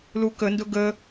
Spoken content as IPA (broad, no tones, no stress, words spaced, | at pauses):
lukəndʊ ɡə